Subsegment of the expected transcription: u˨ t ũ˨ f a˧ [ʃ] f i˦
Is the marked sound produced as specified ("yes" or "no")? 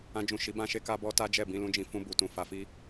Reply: no